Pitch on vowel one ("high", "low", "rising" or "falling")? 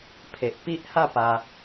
low